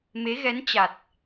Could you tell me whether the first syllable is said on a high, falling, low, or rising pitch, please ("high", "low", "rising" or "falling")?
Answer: rising